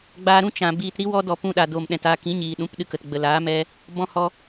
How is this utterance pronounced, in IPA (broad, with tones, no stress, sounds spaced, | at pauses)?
ɡ͡b aː˧ ɾ ũ˦ t͡ʃ ã˨ b iː˧ t ɾ i˦ w ɔ˦ d ɔ˧ p ũ˧ ɗ a˨ d o˨ m ɗ ɛ̃˨ t a˧ k ĩ˨˦ ɲ iː˨ ɗ ũ˨˦ p ɗ ɨ˧ k ə˨ t ɡ͡b ə˨ l aː˨˦ m ɛ˦ | b ɔ̃˧ h ɔ˧